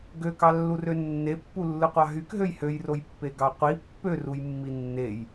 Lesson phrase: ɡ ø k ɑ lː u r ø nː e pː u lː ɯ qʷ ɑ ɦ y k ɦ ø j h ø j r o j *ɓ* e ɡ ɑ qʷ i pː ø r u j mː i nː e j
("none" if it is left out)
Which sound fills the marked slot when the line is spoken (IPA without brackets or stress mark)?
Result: pː